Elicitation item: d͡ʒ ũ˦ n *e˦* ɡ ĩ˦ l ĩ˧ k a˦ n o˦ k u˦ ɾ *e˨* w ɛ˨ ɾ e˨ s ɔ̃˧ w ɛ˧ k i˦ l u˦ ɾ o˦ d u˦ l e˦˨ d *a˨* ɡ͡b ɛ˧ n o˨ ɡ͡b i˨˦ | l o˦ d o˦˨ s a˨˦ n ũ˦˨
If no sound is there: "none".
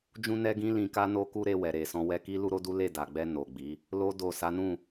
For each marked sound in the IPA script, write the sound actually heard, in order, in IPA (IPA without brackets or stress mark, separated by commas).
ɛ˦, e˧, a˨